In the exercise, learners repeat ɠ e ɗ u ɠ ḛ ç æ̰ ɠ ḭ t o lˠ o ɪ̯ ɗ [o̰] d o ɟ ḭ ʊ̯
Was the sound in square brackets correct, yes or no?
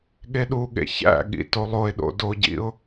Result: yes